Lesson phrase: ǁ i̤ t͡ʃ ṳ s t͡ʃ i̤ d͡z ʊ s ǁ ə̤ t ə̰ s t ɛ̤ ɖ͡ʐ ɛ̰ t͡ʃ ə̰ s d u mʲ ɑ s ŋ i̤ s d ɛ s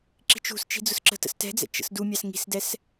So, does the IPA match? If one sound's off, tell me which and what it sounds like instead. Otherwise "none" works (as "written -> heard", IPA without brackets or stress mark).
ɖ͡ʐ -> d͡z